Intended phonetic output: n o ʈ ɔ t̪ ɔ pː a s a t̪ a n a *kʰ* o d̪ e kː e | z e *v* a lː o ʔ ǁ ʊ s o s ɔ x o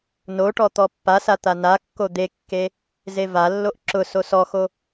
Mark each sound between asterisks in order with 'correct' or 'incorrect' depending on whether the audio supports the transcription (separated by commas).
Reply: incorrect, correct